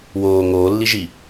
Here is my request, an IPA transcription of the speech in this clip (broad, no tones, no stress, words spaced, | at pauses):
woː ŋoːlːiʒi